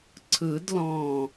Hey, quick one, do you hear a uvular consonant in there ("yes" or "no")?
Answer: no